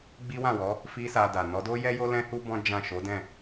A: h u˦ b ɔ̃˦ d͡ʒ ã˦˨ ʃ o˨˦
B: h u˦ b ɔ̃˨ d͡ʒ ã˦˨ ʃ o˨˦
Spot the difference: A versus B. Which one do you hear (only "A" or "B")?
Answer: A